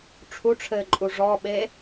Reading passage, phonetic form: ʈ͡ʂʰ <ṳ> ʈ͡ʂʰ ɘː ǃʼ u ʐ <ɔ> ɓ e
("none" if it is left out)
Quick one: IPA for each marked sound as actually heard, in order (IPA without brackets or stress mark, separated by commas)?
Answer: u, ɔ